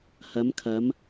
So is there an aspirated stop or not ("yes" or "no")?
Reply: yes